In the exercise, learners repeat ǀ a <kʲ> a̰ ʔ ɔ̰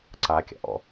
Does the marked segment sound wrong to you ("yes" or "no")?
no